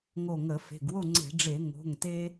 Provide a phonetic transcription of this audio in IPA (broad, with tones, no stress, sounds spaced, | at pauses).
ŋ o˧˩ ŋ ə˧˩˧ f e̤˩˧˩ ɡ w o˥˨ ŋ͡ǀ e̤˧˩˧ ɖ͡ʐ e˧˩˧ ŋ o̤˩˧˩ ŋ t e˦